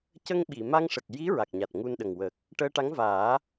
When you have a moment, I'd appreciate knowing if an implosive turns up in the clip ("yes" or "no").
yes